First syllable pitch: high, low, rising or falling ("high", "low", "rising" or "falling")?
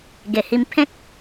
low